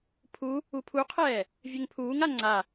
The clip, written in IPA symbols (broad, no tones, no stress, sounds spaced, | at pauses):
pʰ u | u pʰ u qʰ ɛː | vʲ ø ŋ pʰ uː ŋ a ŋ͡ǀ a